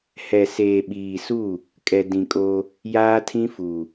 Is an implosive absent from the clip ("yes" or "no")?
no